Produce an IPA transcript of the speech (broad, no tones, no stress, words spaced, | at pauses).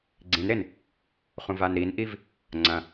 ɡ͡ǀĩnɾen | χũvanɾinʔiv | ŋ͡ǀɐ̃